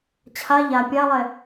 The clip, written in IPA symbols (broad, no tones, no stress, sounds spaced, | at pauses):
t͡ɕʰ a ʎ a pʲ a lˠ ɛ